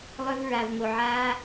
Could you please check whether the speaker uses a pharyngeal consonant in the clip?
yes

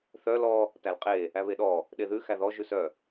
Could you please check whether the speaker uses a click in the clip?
no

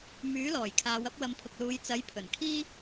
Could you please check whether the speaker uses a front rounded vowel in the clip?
yes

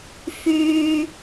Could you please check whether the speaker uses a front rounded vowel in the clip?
yes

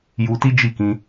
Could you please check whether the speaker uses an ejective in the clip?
no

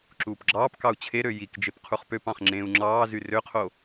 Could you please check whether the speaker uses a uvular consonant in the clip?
yes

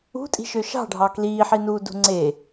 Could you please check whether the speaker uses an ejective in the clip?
yes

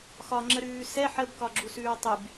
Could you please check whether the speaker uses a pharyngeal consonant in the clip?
yes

